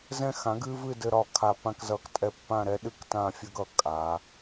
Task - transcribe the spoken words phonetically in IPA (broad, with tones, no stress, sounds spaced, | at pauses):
z ɛ̃˧ x ã˩˧ ɡ ɨ˧ v ɨ˥˧ d ɘ˧ ɾ ɒ˧˩ kʰ a˧˩ p ã˥˧ k z ʌ˧˩ k tʼ ɛ˧ pː ã˥˧ ɾ ɛ˥ ɗ ɨ˥ k t ã˥˧ fʲ ɘ˥ ɡ ʌ˧˩ kʼ a˩˧